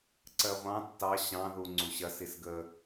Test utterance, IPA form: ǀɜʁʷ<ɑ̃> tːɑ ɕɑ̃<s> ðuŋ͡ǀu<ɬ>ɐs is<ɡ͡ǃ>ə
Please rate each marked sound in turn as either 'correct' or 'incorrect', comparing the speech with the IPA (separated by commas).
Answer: correct, incorrect, incorrect, incorrect